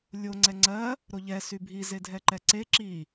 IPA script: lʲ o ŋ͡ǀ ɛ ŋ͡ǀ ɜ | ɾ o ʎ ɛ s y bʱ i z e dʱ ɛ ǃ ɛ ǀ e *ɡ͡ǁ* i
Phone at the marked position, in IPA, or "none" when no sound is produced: ǁ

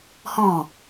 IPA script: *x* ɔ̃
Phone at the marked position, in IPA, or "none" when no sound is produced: h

